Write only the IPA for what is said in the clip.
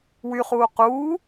wyχuː quː

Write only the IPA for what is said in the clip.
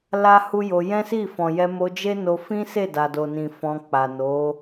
la˦hu˦jo˧ jɛ̃˦si˦˨ fɔ̃˨jɛ˧mo˧d͡ʒe˦ no˧fĩ˦se˦˨ da˨do˨nĩ˨ fɔ̃˧k͡pa˨ no˨˦

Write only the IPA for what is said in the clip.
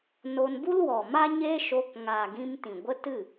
no˧nbu˦lwɔ˨ma˦ ɲe˦ʃo˧kŋaː˨ɡĩ˧m tĩ˨ɡʷə˦tɨ˦˨

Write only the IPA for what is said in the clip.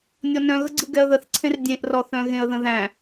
nʲɔnœ̃ɣəɡ͡ǀɯ ɡɛə̯ðəθǀʰẽr dʲẽʔrɔθœ̃ ɣẽə̯ðə̃ðæ̃

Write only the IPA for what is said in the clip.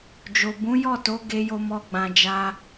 d͡ʒo˨ bũ˨˦jɔ˦˨to˨˦ ɡe˧jo˧ mɔ˦ɡ͡bã˧d͡ʒa˦

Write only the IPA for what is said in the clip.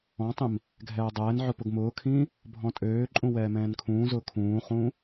ɔ̃tˤĩm | ɡʱɛːdˤɛːnʕʊ pʊɡmʊːkʰĩː | bʱɔ̃tʼøːǃʼũ wɛːmɛ̃ːnkʰũːzʊː kʰũːχũː

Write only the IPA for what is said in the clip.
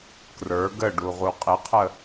krə˞ ɡəɖu ʁuqʼɪqʰə

